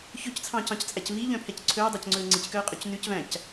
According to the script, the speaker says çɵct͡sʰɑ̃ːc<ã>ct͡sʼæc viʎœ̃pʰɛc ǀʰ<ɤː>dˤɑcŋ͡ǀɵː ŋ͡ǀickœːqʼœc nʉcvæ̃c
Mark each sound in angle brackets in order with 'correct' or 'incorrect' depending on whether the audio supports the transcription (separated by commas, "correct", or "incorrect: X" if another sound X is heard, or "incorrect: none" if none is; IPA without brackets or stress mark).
incorrect: ɑ̃, incorrect: ɵː